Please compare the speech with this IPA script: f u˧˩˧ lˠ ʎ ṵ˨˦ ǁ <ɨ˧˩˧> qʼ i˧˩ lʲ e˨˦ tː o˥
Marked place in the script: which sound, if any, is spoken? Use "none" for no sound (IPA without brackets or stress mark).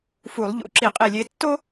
i˧˩˧